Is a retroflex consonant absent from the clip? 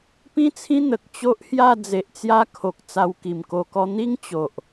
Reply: yes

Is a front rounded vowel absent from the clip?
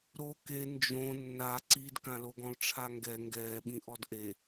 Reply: yes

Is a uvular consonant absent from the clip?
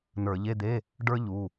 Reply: yes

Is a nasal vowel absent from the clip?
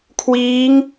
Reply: yes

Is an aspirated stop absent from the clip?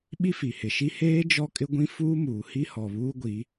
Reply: yes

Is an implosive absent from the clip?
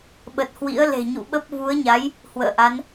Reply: no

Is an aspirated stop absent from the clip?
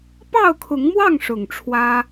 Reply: no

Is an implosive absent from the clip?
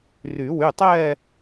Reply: yes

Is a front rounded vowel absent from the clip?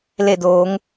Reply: yes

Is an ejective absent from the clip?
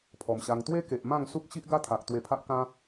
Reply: yes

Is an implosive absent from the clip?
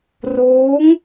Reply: yes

